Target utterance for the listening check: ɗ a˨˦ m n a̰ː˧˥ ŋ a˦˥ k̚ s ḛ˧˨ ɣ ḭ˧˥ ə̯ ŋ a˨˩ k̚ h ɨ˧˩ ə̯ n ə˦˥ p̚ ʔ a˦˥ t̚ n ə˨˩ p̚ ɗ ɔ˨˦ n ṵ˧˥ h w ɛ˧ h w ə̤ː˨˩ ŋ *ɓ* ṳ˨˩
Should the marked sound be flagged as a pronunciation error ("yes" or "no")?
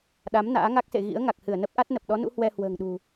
yes